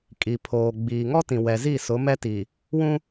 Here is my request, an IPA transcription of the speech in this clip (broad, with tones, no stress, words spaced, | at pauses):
kʼi˨pʰoː˨ ɡ͡biː˨ ŋɔ˦tĩ˨ wɛ˨zi˦˨ sʊ˨˦ mɛ˦tiː˨ | wũ˦